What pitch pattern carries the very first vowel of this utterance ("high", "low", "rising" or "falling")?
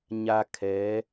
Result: low